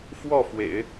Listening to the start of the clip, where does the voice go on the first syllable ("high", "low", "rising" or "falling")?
falling